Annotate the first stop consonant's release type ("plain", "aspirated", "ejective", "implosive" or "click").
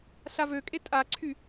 ejective